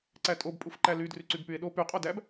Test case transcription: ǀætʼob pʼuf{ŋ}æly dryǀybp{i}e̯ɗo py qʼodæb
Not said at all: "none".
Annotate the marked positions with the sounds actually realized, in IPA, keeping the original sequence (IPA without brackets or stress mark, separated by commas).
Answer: ǃ, y